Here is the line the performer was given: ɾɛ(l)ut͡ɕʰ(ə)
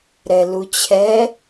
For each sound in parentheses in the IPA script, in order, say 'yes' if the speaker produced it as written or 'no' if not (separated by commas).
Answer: yes, no